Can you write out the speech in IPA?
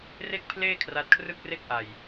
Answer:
r e˥˩ k̚ pʰ l eː˥˩ kʰ r a˦˥ t̚ kʰ r ɯ˥˩ k̚ r e˥˩ k̚ ʔ a˧ j

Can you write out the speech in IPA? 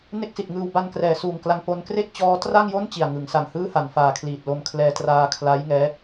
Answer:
n e˥˩ k̚ s i˨˩ t̚ ŋ ɯː˧ w b a˧ n k r ɛː˩˦ s uː˨˩ ŋ k l a˧ ŋ p o˧ n k r e˥˩ k̚ t͡ɕ ɔː˦˥ t r a˥˩ ŋ j o˥˩ n t͡ɕ i˨˩ a̯ ŋ ɯ˩˦ ŋ s a˨˩ ŋ h ɯː˥˩ h a˨˩ n f aː˨˩ kʰ l iː˨˩ t̚ l o˧ m kʰ l ɛː˧ t r aː˧ kʰ l a˦˥ j ŋ ɛː˦˥

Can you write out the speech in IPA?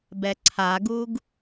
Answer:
b ɛ ǀʰ a ɡ u ɡ

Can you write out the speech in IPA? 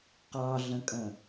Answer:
q ɑ ɮ ə̃ kʼ ə̃

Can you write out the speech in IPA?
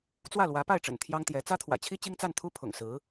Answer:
t͡s w ä˥˩ l w ä˧˥ p a˥˩ ɪ̯ ʈ͡ʂ ə̰˨˩ n t̪ʰ j ɑ˥ ŋ t̪ j ɛ˧˥ t͡s ä˥ t̪ʰ w ä̰˨˩ t͡ɕʰ i˥ t͡ɕ i˥ ŋ t͡s a˥˩ n t̪ʰ u˥ pʰ ʊ̰˨˩ ŋ s ɹ̩˧˥

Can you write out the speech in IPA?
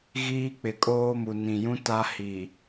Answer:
ɣ iː˦ k͡p ɪ˨ kʼ oː˦ m u˨ n ĩ˨ j ũ˦ t a˦ h i˨

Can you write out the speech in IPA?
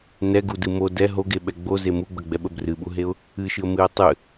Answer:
n ɛ ɡ u d ɨ m o d ɛ ɦ o ɡ e ɓ ɛ ɡ͡b o z e m u ɡ͡b ə ɡ͡b ɛ ɓ ə b r ɨ ɓ u ɦ e ʊ̯ | ɨ ʃ ɨ ə̯ m ɨ ə̯ tˤ ɨ

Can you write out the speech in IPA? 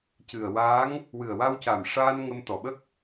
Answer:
c ɨ˨˩ ə̯ w aː˧˥ ŋ | w ɨ˨˩ ə̯ w a˧ w c a˨˩ m ʂ aː˧ n ŋ ə˧ m t̪ ɔ˨˩ ɓ ə˦˥ k̚

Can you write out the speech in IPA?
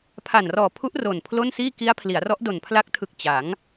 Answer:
pʰ a˨˩ n r ɔː˨˩ pʰ u˦˥ ʔ r o˨˩ n pʰ l o˥˩ n s iː˥˩ k i˦˥ a̯ pʰ l i˩˦ a̯ r ɔ˦˥ ʔ d o˨˩ n pʰ l a˦˥ k̚ tʰ ɯ˨˩ k̚ t͡ɕ a˩˦ ŋ

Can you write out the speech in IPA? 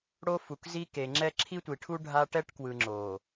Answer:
ɽ o˦ f u˨ k z i˦ k e˨ ŋ͡ǁ ɛ˦ ǁʰ i˦ tʷ i˨ ʈʰ u˦ ɖʱ a˦ ʈ ɛ˦ ʈ k w ɯ˨ ŋ͡ǁ o˨

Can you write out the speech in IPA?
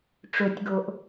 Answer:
ʈ͡ʂ o˨ tʲ ɡ o˨ ʔ

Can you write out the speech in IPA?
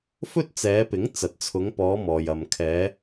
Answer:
f ɵ˥ t̚ t͡s ɛː˨˧ p ɪ˨˥ ŋ t͡s ɐ˨ t̚ t͡sʰ ʊ˨˧ ŋ p ɔː˨˧ m ɔː˨ j ɐ˨ m kʰ ɛː˨˧

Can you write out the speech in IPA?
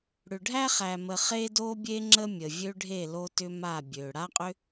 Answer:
ɽ ʏ˨ ɖʱ æ˦ χ æ˨ m ə˨ χ e˦ d o˦ bʲ e˦ ŋ͡ǁ ə˦ mʲ ə˨ vʲ ø˦ ɖʱ e˦˨ l o˧ t ʏ˧ m a˦˨ bʲ ø˨ ɽ a˦ qʼ ʏ˦

